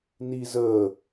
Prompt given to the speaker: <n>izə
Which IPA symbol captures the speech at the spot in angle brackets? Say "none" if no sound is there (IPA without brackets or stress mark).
n